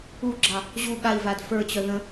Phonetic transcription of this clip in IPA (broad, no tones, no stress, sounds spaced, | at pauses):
u ɡ͡ǁ ɑ | ʑ u ɠ a i̯ v a d f ə˞ t͡ɕ œ ð ə̃